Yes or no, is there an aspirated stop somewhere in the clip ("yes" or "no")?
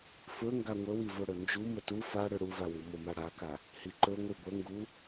no